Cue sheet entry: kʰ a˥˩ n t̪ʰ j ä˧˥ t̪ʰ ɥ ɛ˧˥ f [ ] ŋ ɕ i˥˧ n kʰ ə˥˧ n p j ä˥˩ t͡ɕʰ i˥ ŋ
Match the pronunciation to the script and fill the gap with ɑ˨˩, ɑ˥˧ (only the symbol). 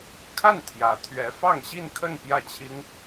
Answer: ɑ˥˧